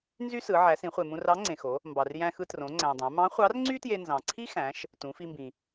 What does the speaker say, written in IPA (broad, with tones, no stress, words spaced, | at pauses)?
nzy˥sɯ˩˧ ʕæ˩˧sĩ˩˧χʷe˩ mũ˧rɑ˧˥ŋ͡ǀẽ˩xo˩˧ | mbɑ˩rjæ̃˧xɯ˧ trõ˩˧ŋ͡ǀæ̃˩dˤæ̃˩˧ mɑ̃˧˥ χʷɑ˧˥rŋ͡ǀy˥tje˧ nzɑ̃˩ǀʰi˥xæ̃˩˧ʃ | tũ˩˧fi˧mbĩ˩